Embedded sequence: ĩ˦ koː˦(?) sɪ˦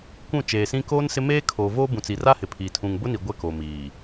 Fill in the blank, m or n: n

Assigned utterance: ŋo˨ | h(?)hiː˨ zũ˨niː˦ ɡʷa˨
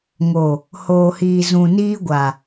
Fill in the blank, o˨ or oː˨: oː˨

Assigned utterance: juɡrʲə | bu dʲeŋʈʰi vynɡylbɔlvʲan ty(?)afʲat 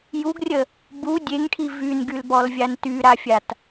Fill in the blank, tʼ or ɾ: ɾ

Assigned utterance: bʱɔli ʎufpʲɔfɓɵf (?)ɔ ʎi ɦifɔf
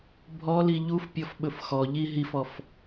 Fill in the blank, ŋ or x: x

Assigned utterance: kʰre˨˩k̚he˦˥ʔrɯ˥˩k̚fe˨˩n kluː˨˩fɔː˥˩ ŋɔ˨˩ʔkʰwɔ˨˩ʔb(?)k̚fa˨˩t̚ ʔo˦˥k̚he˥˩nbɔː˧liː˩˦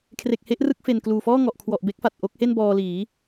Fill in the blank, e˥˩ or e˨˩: e˥˩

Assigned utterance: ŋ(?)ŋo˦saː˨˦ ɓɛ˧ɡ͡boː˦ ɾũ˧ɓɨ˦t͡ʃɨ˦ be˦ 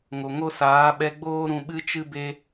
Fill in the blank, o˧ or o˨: o˨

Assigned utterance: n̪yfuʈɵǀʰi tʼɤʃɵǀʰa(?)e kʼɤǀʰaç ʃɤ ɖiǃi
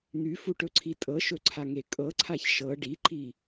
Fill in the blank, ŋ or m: ŋ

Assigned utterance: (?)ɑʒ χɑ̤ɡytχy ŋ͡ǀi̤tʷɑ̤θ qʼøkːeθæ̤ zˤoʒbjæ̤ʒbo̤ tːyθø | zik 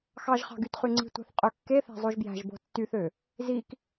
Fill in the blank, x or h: x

